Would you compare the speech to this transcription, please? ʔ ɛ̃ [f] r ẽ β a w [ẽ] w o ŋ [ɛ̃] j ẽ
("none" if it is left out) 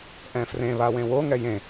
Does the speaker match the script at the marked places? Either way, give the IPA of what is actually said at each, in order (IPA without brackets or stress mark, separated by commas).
f, ẽ, ɛ